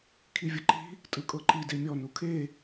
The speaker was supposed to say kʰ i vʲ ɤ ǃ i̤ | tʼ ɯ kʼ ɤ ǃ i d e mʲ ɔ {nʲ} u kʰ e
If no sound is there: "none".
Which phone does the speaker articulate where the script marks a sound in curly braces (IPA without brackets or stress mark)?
n